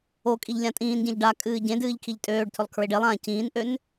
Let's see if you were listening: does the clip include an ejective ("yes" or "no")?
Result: yes